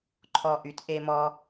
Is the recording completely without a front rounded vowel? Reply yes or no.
no